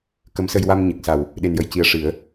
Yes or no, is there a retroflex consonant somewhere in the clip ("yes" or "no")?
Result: yes